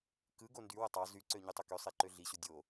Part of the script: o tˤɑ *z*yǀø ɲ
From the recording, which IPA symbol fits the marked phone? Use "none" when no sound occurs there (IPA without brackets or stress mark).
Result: z